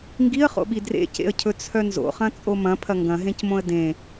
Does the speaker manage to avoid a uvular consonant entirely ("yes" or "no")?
no